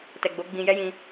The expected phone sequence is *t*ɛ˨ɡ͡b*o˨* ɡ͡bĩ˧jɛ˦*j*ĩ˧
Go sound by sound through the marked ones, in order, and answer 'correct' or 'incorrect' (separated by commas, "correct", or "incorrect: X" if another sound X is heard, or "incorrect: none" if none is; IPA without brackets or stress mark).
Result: correct, incorrect: o˨˦, correct